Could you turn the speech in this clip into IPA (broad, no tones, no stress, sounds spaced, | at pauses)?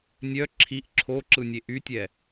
nʲ œ ǁʰ i ʔ ǁʰ o ǁ ɯ nʲ e ʔ y tʲ ɛ